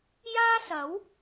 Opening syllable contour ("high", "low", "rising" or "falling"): high